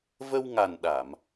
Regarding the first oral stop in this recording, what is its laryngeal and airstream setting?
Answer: implosive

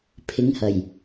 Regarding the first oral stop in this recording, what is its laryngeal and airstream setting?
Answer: aspirated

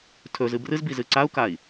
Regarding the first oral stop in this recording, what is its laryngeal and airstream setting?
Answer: aspirated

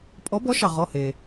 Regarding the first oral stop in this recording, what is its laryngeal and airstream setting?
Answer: ejective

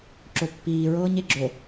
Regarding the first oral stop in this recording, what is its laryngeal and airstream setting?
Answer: click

